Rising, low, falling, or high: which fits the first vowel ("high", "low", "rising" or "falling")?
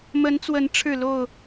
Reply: rising